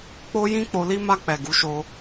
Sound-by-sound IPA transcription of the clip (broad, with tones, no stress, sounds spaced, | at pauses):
k͡p o˦ j ĩ˦ k͡p o˧ l i˧ m a˧ k͡p ɛ˨ ɡ u˨˦ ʃ o˧